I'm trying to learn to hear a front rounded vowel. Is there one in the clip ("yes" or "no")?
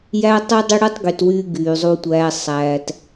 yes